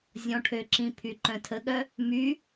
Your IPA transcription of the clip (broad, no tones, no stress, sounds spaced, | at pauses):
zʲ ɔ̃ ʈʰ ø ǁ ĩ pʰ y ǃ œ̃ tʰ ə ɠ œ | m y